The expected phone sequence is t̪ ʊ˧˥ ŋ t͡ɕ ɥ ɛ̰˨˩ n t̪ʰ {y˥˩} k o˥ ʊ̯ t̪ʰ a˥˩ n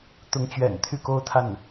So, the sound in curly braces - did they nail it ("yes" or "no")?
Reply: yes